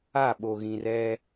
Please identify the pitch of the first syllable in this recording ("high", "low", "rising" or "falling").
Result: falling